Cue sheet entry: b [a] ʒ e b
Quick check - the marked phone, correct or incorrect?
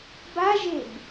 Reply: correct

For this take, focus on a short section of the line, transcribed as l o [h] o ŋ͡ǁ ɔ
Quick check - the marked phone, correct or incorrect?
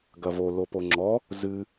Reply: incorrect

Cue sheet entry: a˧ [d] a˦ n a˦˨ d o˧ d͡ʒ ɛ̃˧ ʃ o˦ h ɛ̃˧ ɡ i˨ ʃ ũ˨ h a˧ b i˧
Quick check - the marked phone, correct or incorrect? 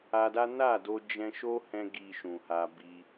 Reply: correct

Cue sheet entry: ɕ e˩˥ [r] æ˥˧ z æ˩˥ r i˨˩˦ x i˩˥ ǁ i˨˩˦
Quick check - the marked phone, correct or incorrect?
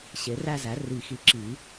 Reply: correct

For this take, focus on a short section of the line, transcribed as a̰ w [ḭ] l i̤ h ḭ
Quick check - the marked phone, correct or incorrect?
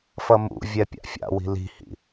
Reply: incorrect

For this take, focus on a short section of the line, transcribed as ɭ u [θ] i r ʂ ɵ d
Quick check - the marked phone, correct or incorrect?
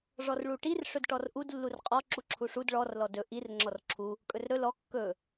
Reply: incorrect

